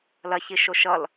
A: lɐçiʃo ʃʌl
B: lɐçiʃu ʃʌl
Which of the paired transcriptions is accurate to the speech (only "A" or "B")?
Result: A